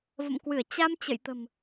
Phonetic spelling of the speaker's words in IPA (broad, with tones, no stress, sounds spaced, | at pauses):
v ə̰˧˨ m k w ɨ˧˩ ə̯ t͡ɕ a˧ m t͡ɕ ə̰˧˨ j t̪ ə̤˨˩ m